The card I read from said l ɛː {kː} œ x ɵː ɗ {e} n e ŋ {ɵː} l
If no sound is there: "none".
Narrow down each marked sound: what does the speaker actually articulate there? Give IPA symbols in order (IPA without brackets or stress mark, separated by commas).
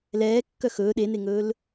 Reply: kː, e, ɵː